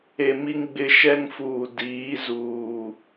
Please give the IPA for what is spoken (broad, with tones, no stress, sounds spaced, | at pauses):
e˨ m i˦ ŋ ɡ͡b ɪ˦ ʃ ɛ˦ ŋ f uː˨ d iː˨˦ z uː˨